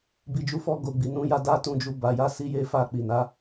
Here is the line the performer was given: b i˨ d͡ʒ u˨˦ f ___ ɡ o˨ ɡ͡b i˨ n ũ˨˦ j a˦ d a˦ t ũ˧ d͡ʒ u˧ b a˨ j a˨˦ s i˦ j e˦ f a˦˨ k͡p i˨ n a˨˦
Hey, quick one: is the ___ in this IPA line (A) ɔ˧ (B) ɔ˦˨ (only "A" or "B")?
A